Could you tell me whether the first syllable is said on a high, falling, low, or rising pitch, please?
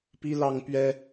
high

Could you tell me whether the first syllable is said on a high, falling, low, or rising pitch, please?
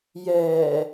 low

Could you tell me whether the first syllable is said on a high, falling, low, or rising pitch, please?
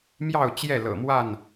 falling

